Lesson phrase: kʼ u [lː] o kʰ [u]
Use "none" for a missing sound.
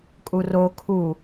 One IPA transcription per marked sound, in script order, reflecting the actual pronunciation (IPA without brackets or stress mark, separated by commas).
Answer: r, u